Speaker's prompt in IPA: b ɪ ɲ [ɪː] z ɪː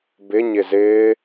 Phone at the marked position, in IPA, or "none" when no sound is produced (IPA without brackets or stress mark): ɪ